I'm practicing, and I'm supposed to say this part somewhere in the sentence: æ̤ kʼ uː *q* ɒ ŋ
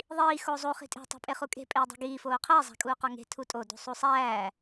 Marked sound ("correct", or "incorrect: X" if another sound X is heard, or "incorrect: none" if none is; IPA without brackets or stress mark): correct